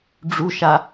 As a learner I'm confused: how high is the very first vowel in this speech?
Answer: high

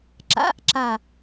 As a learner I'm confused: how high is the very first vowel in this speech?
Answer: low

